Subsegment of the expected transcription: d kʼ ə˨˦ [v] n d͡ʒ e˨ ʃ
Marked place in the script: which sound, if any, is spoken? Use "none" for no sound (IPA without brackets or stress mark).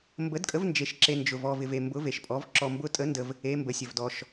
v